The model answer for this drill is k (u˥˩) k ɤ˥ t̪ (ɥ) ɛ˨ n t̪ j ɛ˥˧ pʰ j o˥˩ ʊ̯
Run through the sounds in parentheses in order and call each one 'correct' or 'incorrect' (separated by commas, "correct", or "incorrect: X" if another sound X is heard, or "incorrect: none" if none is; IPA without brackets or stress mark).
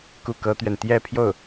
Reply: correct, correct